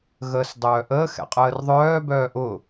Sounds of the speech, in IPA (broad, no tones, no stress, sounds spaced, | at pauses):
ɣ əː s dˤ œː ʔ əː x ɛ̰ qʼ əː r ðˤ œː b œː ʔ ʊ